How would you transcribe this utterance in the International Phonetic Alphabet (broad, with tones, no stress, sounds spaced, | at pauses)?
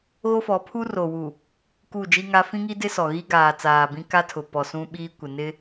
ɣ o˦ f ɔ˨˦ pʰ u˦ r o˨ w u˨ | k u˦˨ d͡ʒ i˦ ŋ a˦ f ĩ˦ ŋ i˦ d ɪ˦ s ɔ˨ ɣ i˦ ɡ aː˨ t͡s aː˨ b ĩ˦ k a˦ tʰ ʊ˨ p ɔ˨ s ũ˦ ɓ iː˦ kʷ ɪ˨ n ɪ˦